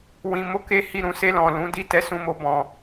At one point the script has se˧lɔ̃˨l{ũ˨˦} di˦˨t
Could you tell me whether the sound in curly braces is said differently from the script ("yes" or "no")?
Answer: no